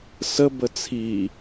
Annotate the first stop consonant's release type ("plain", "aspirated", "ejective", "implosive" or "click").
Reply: plain